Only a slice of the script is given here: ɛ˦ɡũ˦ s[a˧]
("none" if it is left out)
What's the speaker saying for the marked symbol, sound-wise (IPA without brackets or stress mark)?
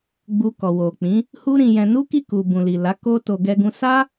a˦